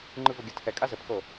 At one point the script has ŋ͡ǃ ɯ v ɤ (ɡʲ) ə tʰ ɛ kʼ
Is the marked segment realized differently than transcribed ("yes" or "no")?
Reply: no